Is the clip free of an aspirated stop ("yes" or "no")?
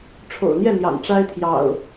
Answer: no